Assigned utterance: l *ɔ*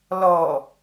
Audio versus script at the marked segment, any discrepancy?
no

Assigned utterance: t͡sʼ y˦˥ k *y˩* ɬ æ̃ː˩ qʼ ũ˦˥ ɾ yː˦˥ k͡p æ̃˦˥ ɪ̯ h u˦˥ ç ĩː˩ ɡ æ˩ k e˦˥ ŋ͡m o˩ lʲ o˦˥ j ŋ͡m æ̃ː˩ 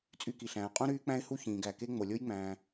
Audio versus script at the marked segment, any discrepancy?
yes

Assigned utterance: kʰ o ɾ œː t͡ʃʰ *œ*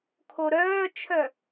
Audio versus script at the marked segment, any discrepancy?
no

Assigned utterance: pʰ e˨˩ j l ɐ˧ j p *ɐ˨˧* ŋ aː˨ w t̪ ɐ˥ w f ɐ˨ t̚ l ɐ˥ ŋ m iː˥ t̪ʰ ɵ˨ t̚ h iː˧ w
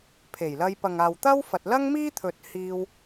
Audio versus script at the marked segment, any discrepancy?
yes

